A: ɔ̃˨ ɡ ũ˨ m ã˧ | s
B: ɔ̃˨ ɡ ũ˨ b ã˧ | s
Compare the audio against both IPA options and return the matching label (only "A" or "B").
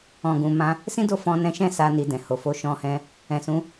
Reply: A